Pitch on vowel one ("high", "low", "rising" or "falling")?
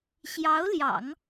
rising